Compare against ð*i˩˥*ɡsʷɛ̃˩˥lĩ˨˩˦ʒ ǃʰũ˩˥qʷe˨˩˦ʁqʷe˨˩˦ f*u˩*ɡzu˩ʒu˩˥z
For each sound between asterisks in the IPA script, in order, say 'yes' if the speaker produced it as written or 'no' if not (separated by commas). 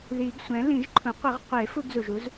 no, no